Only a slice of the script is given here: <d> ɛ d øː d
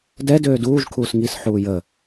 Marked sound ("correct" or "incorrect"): correct